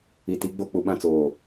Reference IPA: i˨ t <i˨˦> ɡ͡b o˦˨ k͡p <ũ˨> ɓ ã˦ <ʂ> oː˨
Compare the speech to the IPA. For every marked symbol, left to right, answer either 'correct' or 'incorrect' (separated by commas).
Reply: correct, incorrect, incorrect